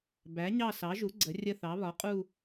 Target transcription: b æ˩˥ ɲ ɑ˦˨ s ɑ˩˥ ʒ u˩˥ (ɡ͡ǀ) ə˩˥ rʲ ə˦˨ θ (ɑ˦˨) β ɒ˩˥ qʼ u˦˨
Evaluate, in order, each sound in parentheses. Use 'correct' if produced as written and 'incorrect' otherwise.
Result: correct, incorrect: ɑ˩˥

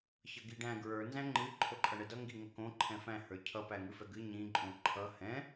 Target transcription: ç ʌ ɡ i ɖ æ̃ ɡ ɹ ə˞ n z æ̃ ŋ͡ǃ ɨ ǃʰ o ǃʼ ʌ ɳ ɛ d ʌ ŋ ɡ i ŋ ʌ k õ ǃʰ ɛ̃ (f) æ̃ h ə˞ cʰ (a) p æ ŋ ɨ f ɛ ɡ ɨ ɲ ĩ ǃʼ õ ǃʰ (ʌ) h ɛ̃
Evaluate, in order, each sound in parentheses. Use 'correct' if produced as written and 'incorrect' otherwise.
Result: correct, incorrect: ʌ, correct

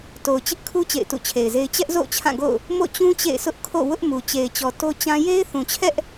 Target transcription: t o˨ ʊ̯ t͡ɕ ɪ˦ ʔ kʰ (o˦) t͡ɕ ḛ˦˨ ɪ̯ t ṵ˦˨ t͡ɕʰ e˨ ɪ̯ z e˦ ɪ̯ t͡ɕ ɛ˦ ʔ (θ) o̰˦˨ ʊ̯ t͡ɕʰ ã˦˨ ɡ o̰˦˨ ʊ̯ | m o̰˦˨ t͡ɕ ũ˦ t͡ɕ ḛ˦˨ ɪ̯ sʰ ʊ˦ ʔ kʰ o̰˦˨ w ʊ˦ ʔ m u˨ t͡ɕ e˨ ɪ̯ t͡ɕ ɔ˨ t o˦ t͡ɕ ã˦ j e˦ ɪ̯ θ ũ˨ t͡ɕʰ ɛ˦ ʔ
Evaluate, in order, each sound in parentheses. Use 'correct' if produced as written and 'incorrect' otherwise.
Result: incorrect: u˦, incorrect: z

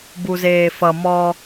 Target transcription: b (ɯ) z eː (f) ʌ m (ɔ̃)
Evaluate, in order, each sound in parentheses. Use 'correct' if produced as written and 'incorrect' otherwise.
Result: incorrect: u, correct, incorrect: ɔ

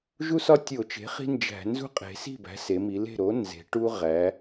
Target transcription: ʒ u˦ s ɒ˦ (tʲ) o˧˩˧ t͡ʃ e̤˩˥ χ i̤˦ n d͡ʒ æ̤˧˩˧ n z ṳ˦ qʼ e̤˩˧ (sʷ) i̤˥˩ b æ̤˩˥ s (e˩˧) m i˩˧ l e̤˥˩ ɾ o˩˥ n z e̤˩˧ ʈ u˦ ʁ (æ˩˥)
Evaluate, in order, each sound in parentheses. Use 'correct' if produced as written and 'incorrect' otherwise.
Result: correct, incorrect: s, correct, incorrect: æ˩˧

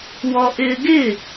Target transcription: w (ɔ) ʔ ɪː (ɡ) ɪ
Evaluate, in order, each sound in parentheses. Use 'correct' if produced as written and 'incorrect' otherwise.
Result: correct, correct

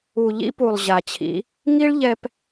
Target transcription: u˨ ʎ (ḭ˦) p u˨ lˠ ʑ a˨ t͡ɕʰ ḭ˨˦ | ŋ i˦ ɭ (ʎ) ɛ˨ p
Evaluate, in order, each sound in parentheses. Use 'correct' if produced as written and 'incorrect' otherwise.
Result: correct, correct

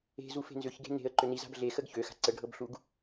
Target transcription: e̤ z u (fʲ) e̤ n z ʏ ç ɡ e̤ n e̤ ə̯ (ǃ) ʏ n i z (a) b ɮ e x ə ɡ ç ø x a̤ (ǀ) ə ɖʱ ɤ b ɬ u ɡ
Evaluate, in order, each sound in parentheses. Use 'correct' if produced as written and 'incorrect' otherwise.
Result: incorrect: f, correct, incorrect: a̤, correct

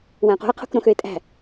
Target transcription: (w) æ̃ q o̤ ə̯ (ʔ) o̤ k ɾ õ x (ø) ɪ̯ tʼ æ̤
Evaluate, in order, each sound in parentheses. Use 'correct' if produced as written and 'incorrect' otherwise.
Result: correct, incorrect: qʰ, correct

